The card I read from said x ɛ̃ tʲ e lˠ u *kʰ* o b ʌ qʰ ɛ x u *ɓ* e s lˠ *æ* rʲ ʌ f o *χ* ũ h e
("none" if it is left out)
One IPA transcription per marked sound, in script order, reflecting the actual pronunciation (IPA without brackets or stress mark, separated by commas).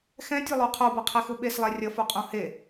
qʰ, ɓ, ɛ, qʼ